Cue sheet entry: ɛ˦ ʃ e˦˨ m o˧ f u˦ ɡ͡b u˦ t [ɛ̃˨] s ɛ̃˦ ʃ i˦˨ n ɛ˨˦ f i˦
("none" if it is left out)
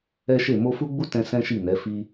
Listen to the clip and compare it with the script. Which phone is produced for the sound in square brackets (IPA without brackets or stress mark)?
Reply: ɛ̃˧